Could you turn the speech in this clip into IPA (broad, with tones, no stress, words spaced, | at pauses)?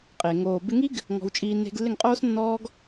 qʼe˨ ŋoː˨bɪ˧ŋi˦ɡ | ŋɔ̤˧wt͡ʃʼiː˧ ne̤˧ɡlːɪ˦˨ŋ qʼoː˦snːɔː˦ɡ